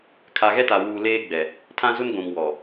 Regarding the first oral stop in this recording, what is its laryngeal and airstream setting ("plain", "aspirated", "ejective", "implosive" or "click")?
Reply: aspirated